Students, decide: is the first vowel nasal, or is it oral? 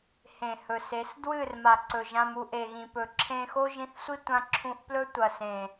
nasal